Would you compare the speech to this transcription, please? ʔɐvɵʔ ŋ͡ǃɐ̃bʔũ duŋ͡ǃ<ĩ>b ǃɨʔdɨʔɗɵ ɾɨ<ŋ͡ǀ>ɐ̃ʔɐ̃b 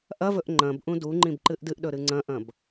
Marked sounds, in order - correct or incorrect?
correct, correct

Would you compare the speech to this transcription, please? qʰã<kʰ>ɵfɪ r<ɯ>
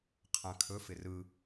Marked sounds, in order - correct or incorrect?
correct, correct

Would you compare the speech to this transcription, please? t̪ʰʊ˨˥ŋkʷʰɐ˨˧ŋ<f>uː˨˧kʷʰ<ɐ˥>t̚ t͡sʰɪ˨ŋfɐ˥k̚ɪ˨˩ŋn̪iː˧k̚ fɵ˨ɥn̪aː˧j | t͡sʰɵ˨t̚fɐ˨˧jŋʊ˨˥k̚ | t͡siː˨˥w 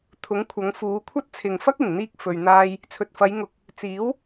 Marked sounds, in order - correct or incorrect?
correct, correct

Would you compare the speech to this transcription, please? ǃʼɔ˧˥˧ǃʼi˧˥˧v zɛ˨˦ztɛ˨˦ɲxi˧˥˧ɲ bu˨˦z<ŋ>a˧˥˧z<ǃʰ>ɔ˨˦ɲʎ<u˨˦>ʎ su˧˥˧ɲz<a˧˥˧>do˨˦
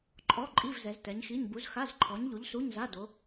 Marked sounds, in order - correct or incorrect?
incorrect, correct, correct, correct

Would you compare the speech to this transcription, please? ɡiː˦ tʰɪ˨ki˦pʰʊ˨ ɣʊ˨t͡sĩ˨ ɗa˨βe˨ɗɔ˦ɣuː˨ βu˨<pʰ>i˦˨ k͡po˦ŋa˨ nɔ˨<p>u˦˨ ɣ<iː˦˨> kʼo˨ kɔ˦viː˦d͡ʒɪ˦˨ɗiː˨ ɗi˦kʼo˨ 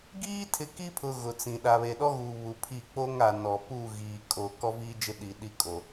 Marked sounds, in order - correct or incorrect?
correct, correct, incorrect

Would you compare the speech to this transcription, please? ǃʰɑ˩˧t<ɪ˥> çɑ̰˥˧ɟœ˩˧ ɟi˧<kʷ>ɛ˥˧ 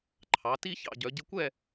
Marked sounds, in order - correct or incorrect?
incorrect, correct

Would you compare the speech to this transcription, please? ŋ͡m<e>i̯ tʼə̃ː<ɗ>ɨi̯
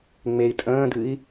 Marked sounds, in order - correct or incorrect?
correct, incorrect

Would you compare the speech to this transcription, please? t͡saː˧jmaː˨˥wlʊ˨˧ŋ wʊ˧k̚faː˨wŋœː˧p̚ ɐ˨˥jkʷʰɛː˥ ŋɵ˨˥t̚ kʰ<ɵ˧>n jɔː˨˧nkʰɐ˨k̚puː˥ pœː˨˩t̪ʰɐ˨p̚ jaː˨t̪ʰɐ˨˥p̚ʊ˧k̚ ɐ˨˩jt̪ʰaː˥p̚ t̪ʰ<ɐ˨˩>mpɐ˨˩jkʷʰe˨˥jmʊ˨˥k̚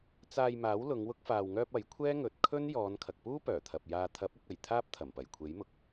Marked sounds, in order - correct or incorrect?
incorrect, correct

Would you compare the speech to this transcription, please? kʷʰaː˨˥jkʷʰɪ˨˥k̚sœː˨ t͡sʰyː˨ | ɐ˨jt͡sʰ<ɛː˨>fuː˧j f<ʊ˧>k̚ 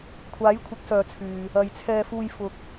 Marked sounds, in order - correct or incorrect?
incorrect, correct

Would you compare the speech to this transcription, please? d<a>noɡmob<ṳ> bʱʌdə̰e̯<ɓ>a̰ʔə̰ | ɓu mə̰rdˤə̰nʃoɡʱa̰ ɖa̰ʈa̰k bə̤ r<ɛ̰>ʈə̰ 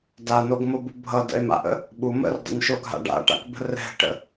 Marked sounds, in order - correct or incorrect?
correct, incorrect, incorrect, incorrect

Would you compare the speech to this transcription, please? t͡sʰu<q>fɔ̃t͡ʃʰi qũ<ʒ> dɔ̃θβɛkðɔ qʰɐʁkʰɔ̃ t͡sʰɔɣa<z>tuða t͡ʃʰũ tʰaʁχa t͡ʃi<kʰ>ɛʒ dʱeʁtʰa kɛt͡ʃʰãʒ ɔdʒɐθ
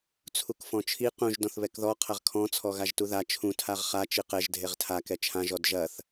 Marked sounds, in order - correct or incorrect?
incorrect, correct, incorrect, incorrect

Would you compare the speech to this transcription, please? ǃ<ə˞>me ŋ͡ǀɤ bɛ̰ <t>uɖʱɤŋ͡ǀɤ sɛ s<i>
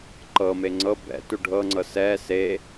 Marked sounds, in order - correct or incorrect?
incorrect, correct, incorrect

